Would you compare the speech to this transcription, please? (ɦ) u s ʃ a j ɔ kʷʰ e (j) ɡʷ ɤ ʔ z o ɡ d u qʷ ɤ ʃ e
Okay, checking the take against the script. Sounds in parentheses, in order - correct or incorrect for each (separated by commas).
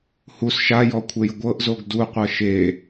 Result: incorrect, correct